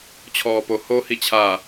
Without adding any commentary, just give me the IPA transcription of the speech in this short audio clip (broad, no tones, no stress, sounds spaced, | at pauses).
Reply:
t͡ɕʰ ɔː p o h o h i t͡ɕʰ a